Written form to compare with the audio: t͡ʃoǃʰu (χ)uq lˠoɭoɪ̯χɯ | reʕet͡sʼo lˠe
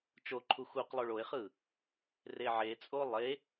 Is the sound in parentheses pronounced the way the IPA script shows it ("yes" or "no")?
no